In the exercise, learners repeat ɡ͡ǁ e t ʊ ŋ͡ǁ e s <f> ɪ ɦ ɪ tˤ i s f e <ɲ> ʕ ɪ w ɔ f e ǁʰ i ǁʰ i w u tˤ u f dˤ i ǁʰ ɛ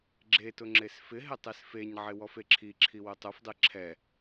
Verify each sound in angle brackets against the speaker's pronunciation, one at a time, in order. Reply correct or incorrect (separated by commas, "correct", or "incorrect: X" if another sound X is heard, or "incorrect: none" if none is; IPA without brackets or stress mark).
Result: correct, correct